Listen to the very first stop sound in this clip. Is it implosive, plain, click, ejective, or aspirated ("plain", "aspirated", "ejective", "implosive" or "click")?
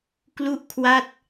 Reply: plain